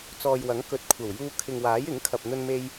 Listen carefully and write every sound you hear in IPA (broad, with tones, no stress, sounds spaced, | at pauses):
t͡s ɔː˨ j w ɐ˨˥ ŋ k ɵ˨˥ t̚ kʷʰ ɐ˨˩ w j uː˧ kʰ ɪ˨ ŋ w aː˨˥ j ɪ˨˥ ŋ kʰ ɐ˨ p̚ n̪ ɵ˧ n m e˧ j